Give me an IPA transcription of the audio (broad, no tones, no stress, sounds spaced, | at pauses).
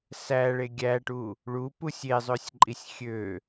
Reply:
s æ ɭ e ɡʲ æ ʈ u | ɭ u p u sʲ e zˤ ø sʲ ǃʼ i sʲ xʲ ø